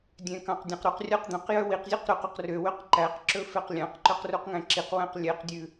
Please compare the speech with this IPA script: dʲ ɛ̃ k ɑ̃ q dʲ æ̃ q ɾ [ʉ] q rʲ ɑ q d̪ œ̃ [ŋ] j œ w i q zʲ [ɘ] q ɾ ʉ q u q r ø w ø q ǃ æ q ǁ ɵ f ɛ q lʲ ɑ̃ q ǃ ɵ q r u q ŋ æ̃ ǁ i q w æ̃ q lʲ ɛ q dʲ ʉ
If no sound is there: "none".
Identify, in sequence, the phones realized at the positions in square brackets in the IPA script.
u, q, ʉ

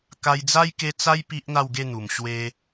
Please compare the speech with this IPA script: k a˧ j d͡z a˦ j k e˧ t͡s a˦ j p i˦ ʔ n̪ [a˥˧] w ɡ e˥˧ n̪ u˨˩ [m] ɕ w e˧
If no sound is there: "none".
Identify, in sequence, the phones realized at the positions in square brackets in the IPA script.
a˥˧, m

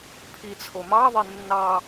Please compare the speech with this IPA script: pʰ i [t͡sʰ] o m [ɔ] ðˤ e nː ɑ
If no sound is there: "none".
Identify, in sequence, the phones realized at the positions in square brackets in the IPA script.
t͡sʰ, ɑ

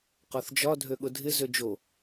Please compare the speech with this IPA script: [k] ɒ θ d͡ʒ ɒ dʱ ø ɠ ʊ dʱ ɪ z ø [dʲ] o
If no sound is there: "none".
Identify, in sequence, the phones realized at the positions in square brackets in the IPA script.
q, d͡ʒ

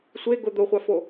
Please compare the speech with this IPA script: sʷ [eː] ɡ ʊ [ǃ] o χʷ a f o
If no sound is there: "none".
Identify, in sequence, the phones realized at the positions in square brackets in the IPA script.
e, d̪

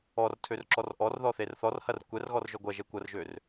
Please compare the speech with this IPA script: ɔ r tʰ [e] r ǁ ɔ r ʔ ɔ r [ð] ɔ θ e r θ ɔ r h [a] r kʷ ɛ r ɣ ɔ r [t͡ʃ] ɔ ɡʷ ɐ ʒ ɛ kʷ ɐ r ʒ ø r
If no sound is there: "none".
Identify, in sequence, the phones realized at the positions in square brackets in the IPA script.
ø, ð, ɐ, ʒ

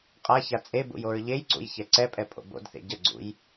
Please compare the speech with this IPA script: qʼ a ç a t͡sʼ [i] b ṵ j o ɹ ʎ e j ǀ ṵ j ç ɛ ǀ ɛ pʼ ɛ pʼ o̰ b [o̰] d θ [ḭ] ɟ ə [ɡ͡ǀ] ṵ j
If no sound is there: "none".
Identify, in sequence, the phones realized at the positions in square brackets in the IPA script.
e, o̰, ḛ, ɡ͡ǀ

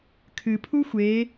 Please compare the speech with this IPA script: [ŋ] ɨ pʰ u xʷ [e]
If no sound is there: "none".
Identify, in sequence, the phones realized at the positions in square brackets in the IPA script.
kʰ, e

